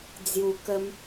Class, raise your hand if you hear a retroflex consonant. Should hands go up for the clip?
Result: no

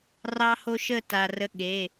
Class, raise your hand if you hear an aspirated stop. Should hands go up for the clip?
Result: no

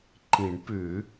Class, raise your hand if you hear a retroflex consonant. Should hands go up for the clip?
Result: yes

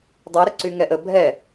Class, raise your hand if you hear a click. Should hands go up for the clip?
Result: yes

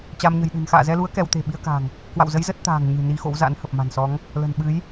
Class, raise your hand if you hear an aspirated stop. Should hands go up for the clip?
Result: no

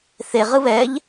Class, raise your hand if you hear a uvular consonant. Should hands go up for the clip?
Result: yes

